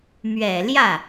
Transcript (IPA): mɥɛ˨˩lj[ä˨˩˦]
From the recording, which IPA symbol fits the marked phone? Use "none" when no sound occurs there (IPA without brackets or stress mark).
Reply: ä˥˩